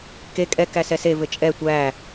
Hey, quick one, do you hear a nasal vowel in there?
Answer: no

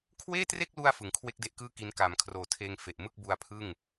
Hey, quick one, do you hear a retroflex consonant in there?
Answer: no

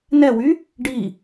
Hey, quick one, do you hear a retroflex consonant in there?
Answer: yes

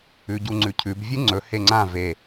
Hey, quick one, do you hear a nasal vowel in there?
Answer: yes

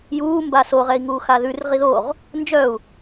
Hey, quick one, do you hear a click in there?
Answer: no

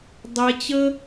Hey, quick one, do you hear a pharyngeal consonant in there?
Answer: no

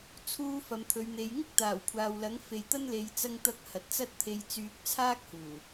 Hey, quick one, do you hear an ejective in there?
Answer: no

